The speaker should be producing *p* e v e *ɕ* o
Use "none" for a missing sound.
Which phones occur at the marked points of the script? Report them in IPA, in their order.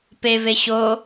p, ɕ

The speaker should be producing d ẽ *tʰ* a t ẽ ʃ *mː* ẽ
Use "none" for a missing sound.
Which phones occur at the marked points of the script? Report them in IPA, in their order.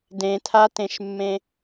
tʰ, mː

